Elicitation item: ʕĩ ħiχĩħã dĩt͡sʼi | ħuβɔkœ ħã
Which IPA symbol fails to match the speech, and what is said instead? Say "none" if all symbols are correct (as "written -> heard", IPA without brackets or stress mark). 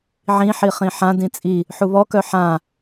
none